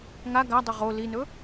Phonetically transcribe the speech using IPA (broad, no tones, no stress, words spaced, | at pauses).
ŋa ɡadˤo ʁo linɵ